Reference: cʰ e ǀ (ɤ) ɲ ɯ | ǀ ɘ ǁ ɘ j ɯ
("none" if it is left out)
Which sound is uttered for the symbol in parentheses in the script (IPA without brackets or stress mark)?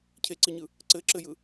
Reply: ɯ